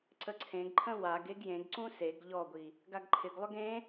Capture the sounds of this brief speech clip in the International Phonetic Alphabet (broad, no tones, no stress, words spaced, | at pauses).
ǀəǀʰẽɡǃʰə̃ waɡ eɡjẽɡǀũ seɡ ʎɔɡʷi | ɡaɡǃʰɪɡlˠʏɡ ẽ